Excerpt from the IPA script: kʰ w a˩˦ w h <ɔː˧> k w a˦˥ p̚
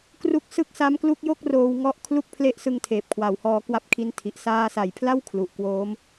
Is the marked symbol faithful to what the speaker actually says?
yes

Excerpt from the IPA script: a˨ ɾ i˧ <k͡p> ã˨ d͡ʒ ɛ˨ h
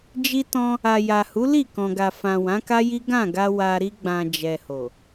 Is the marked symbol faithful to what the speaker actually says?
no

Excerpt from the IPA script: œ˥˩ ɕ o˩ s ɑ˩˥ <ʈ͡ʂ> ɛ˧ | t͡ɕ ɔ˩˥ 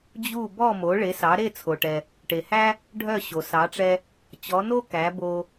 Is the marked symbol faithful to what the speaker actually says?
yes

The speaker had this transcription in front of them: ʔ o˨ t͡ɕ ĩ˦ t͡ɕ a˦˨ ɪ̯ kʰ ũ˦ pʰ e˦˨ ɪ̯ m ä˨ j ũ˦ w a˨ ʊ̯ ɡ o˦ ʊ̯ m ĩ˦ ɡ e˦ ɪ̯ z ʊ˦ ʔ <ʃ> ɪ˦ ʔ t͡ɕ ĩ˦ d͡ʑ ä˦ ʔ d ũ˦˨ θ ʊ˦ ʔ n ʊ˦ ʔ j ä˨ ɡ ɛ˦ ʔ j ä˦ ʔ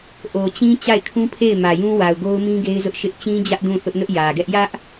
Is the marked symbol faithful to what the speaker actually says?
yes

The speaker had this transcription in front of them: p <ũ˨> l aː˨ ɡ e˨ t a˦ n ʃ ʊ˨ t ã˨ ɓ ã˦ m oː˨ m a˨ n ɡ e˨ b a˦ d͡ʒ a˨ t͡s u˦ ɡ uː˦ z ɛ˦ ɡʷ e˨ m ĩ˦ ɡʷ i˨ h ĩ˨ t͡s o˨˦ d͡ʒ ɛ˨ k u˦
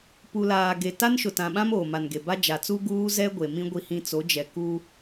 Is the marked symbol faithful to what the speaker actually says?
no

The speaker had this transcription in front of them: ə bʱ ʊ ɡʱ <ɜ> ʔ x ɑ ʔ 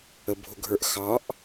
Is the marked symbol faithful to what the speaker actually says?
no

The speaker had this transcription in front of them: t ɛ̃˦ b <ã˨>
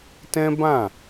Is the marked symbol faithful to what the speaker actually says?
no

